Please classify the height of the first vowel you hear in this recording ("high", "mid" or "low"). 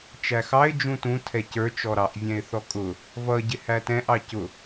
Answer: low